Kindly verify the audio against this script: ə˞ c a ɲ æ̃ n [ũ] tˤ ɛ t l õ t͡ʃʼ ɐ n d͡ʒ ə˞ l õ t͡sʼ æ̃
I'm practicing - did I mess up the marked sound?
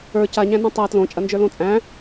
yes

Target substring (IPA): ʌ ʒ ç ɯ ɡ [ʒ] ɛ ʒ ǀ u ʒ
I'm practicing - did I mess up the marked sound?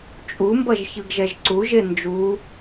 no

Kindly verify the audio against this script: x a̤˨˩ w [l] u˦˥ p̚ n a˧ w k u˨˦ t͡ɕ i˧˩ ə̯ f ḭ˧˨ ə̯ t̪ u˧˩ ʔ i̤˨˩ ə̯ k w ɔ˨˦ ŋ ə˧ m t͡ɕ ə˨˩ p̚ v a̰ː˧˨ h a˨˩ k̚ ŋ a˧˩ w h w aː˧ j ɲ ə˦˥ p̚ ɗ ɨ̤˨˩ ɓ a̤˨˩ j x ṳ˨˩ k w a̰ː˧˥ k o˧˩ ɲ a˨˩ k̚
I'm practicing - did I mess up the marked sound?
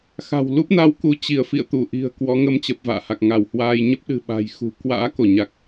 no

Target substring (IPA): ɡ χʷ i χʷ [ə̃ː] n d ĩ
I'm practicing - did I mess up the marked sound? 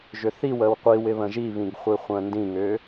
no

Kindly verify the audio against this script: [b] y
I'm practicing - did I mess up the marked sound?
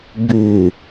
no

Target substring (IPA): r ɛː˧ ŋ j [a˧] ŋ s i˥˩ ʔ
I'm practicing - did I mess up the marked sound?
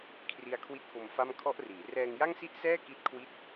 yes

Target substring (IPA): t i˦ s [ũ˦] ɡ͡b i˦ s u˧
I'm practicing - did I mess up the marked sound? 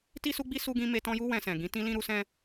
yes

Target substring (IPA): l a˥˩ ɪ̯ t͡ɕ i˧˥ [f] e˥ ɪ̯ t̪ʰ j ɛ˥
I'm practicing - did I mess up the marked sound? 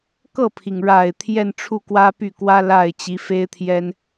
no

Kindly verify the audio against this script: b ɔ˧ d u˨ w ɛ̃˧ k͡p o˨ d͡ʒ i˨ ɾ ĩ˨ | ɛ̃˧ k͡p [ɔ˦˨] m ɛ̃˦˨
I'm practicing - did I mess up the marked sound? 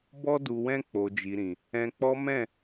yes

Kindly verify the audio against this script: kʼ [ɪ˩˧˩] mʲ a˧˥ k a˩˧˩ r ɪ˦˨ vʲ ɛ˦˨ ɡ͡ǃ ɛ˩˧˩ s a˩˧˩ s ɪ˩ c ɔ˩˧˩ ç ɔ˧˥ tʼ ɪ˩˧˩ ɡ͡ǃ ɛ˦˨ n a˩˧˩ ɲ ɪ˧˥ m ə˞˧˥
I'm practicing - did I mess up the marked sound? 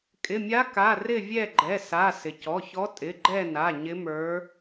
no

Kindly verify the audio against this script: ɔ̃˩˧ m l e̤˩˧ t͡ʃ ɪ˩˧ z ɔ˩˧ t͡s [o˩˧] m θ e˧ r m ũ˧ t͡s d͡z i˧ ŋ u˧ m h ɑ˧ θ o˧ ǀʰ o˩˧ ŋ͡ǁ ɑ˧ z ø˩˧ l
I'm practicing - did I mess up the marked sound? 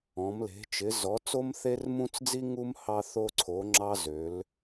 yes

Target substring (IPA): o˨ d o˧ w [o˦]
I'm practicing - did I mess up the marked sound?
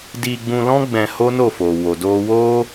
no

